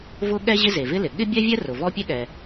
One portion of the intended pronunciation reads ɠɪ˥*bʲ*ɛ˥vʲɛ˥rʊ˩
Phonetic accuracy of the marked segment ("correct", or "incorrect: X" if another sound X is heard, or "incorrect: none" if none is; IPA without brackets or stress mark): correct